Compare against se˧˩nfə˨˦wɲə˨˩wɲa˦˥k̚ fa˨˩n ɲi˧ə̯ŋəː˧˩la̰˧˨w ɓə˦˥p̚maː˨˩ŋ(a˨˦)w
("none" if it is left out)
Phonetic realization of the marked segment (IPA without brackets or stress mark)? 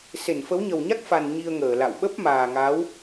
a˨˦